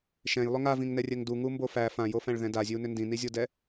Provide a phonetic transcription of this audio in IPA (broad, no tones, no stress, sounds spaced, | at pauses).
ʃ ɛ̃ j lˠ ʏ ŋ a v ĩ ŋ n ɛ rʲ ɛ ŋ d u ŋ u m b o f æ f ã j o f æ̃ ɭ ð ɛ̃ d a zʲ ø u̯ n ʏ n d ĩ n i zʲ o d ɛ